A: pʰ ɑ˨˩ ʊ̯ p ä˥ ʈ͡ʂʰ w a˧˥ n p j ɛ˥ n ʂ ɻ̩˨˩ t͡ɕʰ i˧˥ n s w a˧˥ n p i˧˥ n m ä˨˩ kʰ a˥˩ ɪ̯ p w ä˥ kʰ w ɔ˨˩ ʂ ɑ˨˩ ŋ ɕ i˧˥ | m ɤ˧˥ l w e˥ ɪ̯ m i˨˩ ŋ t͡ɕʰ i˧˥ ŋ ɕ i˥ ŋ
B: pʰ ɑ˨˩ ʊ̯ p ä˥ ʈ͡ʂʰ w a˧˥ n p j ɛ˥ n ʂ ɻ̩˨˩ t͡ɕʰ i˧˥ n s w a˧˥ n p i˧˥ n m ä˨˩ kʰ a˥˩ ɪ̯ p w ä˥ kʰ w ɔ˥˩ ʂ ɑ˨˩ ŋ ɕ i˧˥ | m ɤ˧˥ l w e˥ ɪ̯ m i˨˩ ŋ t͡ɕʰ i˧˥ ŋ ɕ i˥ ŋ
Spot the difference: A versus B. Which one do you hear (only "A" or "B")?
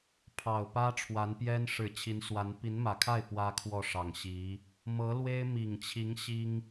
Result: B